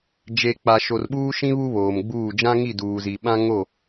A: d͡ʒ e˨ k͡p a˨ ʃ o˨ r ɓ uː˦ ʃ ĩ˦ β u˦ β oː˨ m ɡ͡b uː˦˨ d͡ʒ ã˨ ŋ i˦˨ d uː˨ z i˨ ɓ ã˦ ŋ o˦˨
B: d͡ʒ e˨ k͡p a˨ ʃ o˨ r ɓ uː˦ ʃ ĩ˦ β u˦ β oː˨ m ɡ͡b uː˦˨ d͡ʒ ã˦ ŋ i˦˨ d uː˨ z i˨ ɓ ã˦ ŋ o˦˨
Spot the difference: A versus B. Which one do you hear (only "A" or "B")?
B